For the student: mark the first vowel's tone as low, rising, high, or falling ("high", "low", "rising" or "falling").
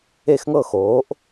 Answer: falling